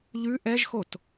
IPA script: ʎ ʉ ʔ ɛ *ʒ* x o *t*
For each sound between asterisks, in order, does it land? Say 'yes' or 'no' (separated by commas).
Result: yes, yes